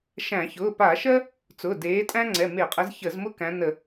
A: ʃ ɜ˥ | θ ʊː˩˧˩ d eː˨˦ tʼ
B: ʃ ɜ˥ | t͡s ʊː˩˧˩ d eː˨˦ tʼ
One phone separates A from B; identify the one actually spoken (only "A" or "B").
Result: B